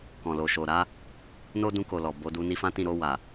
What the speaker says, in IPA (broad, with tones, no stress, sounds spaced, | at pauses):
k ɔ̃˨ l o˨ ʃ o˨ ɾ a˨˦ | n o˦ d ũ˧ k o˨ l ɔ˨ b o˨˦ d u˧ n i˧ f ã˦ t ĩ˦˨ ɾ o˧ w a˨